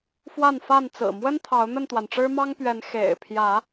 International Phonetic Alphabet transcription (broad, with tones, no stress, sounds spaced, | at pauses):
f w a˥˨ n f a˥˨ n t͡s ɹ̩˨˩ m w ə˦ n t̪ʰ ɑ˨˦ ʊ̯ n̪ ə˥˨ n t̪ w a˩ n ʈ͡ʂ ɻ̩˦ m ɑ˦ ŋ p ɥ ɛ˨˦ n x ḛ˨˩ ɪ̯ pʰ j ä˨˦